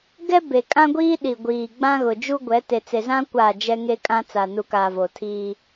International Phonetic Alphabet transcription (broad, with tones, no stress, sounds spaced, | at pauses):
ɡ ɛ˦ b e˨ kʼ ã˦ ɡʷ iː˦ ɗ i˨ ɡʷ iː˨ ɡ͡b ã˦ ɣ ʊ˨ d͡ʒ u˦ ɡʷ ɛ˨˦ t e˨ t͡s e˨ z ã˦ kʷ aː˦˨ d͡ʒ ɛ˦ ŋ e˦ kʼ ã˦ t͡s a˨ n u˨ k aː˨ v o˨ tʰ iː˦